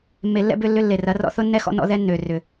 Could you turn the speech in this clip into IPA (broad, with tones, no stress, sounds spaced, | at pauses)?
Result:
mː e˨ lː ɛ̰˦˨ b ʏ˦˨ lː ʏ˧ lː e˨ r ɐ˨˦ r ɔ̰˦ θ ʊ˦ nː ɛ˦ x ɔ̰˦ n ɔ̰˦ ð ɛ˦ nː ø˨ r ʏ˨